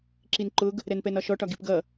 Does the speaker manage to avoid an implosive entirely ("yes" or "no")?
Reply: yes